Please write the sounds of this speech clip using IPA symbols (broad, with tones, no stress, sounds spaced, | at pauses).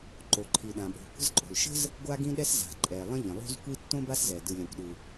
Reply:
ǃ o˩ ǃʰ i˩ ɗ ã˩ ɓ o̤˩ kʷ ə̤˥ z ǃʼ o̤˩ l ʃ ə̤˥ z | ɡʷ a˥ ɡ ĩ˥ ɗ ɛ˥ s z a̤˩ ǃʼ ɛ˩ lˠ ə̃˥ ʎ ə̃˩ lˠ o̤˥ z kʷ i˥ tː õ˥ b a˥ s z ɛ˩ d ɯ˩ lʲ ã˩ kʷ ɗ ɯ˩